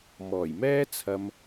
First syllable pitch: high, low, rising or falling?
low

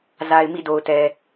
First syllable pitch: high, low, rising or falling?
low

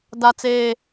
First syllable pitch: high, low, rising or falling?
high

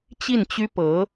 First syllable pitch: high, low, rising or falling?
falling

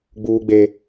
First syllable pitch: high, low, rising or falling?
high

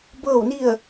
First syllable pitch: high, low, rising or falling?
falling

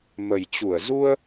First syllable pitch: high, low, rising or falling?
low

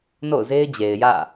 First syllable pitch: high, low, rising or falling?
falling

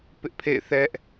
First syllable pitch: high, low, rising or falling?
high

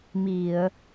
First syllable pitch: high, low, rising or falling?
low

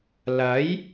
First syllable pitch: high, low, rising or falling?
rising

